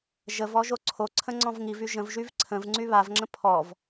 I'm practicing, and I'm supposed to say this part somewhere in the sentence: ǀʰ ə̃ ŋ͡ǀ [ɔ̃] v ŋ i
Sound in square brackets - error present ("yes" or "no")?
no